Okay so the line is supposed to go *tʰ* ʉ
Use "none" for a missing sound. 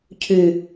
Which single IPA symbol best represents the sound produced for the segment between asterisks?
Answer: cʰ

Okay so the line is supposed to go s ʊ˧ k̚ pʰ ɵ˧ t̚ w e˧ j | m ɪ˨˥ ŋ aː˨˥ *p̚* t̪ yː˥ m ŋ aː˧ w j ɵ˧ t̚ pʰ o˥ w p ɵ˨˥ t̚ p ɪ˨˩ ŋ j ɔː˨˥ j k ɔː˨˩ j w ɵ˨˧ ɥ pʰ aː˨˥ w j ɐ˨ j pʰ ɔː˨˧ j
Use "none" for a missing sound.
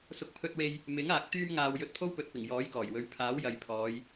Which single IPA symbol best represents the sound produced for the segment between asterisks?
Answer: k̚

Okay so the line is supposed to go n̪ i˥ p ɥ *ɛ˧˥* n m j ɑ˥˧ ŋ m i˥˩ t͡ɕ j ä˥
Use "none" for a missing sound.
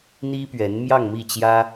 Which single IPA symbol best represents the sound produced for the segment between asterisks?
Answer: ɛ˧˥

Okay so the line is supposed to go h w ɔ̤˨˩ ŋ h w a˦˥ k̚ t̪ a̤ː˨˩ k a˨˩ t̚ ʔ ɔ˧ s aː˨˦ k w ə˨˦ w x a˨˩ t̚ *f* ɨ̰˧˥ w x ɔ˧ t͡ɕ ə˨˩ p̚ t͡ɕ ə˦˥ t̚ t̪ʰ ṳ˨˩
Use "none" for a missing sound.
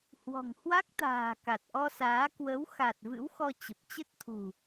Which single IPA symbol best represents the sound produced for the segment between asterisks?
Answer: v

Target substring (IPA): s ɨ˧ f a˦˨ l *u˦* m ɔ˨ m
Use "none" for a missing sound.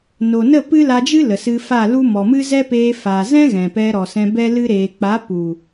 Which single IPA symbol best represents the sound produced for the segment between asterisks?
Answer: u˦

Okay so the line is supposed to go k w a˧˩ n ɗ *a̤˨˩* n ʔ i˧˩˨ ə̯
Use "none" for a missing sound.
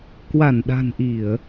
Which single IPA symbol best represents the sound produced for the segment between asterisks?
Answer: a̤˨˩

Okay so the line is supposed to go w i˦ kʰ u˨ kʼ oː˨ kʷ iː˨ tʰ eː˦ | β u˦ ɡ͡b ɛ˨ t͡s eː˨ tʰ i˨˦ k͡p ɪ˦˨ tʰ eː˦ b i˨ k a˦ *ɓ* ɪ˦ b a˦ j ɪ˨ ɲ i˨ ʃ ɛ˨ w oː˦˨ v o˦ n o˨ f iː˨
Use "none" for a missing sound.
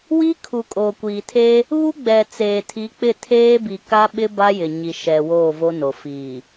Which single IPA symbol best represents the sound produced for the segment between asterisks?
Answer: ɓ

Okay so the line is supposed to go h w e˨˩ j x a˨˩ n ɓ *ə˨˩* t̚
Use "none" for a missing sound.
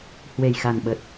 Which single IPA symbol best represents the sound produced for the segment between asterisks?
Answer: ə˨˩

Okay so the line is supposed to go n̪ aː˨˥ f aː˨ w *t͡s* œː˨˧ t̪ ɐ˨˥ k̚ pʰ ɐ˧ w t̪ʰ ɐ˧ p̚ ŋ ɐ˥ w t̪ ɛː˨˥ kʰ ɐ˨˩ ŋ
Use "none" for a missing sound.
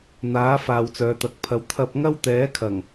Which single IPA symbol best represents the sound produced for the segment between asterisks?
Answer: t͡s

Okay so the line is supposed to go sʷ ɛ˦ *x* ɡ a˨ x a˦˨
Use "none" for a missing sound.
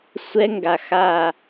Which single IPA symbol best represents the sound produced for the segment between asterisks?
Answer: ŋ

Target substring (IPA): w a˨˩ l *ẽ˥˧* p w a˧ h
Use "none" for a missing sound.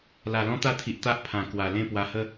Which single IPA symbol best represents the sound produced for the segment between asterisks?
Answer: ẽ˥˧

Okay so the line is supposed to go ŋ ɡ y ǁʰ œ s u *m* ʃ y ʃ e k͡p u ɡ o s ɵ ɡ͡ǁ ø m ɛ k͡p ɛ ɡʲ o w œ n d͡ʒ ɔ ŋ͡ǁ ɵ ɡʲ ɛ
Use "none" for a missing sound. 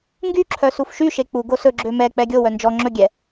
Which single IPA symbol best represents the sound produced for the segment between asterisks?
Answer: f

